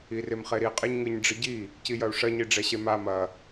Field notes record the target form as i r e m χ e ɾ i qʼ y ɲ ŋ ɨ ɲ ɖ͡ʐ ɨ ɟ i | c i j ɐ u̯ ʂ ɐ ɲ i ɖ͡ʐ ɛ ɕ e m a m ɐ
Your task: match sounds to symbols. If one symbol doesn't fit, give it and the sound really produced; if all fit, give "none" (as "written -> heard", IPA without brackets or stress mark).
y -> e